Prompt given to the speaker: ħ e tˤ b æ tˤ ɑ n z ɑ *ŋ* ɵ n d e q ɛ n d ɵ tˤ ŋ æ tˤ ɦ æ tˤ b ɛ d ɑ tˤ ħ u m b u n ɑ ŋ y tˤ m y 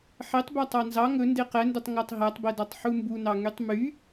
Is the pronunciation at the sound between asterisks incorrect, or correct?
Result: correct